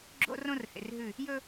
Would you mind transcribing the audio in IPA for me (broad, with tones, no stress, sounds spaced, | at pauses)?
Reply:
ɡ͡ǁ o̰˦ r õ˦ r h ḛ˨ r ɦ ʉ˦˨ | j ɵ˦